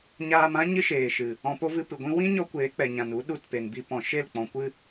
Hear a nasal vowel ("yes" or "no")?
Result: yes